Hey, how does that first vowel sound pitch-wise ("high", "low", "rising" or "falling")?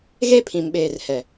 high